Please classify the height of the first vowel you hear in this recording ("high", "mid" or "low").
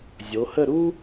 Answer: mid